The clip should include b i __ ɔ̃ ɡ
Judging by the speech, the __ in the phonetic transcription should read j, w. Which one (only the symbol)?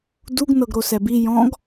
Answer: j